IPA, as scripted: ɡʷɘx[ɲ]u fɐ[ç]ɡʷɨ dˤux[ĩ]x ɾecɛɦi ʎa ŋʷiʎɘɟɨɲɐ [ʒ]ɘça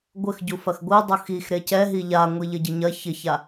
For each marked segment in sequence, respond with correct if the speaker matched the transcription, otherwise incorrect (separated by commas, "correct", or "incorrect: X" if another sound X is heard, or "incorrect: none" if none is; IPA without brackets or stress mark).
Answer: incorrect: ɟ, incorrect: x, incorrect: i, incorrect: ç